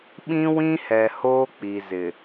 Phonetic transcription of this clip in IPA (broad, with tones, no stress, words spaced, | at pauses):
ɓĩ˦ wĩ˦hɛ˨ hoː˦k͡pi˨zɪ˨